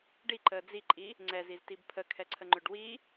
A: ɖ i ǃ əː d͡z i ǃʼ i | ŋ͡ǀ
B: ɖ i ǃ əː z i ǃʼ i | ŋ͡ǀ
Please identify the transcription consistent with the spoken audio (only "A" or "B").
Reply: A